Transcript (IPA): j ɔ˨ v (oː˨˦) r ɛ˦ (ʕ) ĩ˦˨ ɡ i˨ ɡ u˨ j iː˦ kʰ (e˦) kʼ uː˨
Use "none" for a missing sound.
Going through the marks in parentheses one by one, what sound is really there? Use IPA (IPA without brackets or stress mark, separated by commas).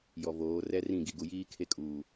oː˨˦, r, e˦